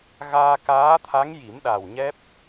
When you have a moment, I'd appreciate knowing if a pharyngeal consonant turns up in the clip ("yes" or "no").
no